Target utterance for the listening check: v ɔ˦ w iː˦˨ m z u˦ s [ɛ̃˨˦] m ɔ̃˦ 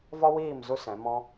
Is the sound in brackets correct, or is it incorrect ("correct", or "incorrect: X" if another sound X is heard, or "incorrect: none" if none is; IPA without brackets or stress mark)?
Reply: correct